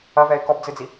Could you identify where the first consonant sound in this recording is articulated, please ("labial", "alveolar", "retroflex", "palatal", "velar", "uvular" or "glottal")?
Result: labial